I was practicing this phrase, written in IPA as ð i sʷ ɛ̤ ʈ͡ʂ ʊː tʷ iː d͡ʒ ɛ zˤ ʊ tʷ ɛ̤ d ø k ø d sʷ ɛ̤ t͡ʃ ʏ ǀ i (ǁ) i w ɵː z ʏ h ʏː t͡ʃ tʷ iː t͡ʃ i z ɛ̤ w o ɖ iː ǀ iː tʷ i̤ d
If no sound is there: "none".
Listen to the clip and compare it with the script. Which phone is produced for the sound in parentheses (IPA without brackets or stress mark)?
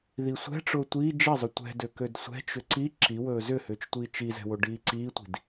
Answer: ǁ